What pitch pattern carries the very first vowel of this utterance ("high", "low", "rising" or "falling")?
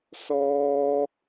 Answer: high